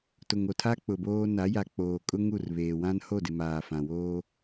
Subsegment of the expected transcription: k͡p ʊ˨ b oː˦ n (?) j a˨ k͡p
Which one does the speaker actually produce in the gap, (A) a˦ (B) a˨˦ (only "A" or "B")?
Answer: B